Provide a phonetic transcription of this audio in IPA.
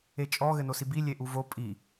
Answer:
et͡ʃʼɔ ɣɘnosibi lʲeʔuvo pʼi

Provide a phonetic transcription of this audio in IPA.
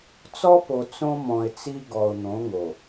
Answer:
t͡sɔ˦po˨ t͡sõ˦mɔ̃˨ɪ̯t͡si˦ ɡɔ˨ʊ̯n̪õ˨˦ŋo˨

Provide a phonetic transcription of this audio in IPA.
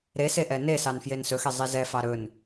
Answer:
ɾeseʔɛ nesɑnfjen sɵxezˤe zɛfɑ ɾɵn

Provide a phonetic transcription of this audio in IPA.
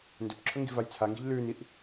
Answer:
ndɵpǁʰɵŋɡi̤vaj t͡sʰaŋɡi̤ʎ lʉːniʔ

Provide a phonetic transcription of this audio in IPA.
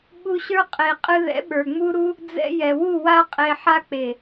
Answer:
ɓu˧ɕə˞˦ qʼe˨ qʼɨ˧ðɛ̰˨˦ɓə˞˨ ŋ͡mu˦ɾu˦ | d͡zɛ̰˧jɛ˨wu˦˨ wa˦qʼe˧ ħa˦k͡pe˨

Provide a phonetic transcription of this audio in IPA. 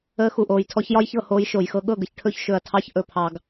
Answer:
əː˧xu˨ʔoː˨jtʰɔ˧ç jɒ˦jçɤ˦˨hoː˧j ʃo˨jxɤ˧ɠɤ˦˨ɡə˧ç ʈʰɵ˦çʃɵ˧ɐ̯tʰɑ˦ç ʔɵ˨pʰɑ˨ɡ

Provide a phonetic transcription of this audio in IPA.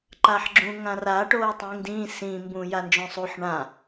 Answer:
ǃaħɡ͡ǁũ ŋãra ʈoːɐ̯tˤĩːŋdĩː sĩ mbũːjand͡ʒõsˤuħ ɳã

